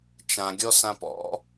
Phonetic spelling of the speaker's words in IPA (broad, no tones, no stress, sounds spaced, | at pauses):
t͡ʃ ã ɡʲ ɔ s ã p ɔ̰